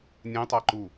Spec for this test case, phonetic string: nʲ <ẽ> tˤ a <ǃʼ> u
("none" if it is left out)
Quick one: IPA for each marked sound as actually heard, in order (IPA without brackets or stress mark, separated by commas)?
ẽ, ǃ